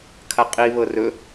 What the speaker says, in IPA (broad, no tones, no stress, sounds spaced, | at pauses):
kʰ a qʼ i β ɤ r ɵ